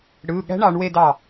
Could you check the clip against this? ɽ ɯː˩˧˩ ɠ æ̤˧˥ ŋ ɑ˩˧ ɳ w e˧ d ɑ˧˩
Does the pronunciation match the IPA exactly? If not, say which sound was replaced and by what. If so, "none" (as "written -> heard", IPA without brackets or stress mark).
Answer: ŋ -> ɳ